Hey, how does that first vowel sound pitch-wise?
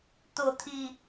low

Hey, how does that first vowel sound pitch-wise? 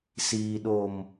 low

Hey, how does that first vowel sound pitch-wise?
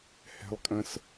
high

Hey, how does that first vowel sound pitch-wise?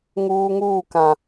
high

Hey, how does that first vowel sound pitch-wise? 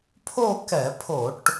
falling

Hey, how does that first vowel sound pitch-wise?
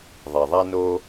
low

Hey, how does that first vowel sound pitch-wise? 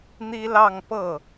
high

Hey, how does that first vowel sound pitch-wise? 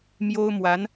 high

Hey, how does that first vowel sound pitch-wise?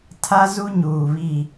high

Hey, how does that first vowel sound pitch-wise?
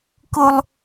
high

